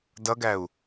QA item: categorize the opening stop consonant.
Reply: plain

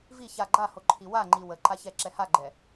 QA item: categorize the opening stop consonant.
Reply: click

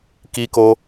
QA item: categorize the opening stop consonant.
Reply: plain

